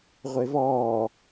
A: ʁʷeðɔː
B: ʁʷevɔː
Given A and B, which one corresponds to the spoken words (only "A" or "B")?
B